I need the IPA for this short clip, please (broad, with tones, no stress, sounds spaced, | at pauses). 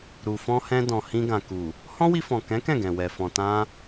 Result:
ɾ u˨ f ɔ̃˧ h ɛ̃˧ d ɔ̃˨ h ĩ˧ ɡ ã˨ k u˨ | h ɔ̃˦ w i˧ f ɔ̃˨ k ɛ̃˨˦ k ɛ̃˦˨ ɡ ɛ̃˨ w ɛ˨ f ɔ̃˨ t ã˧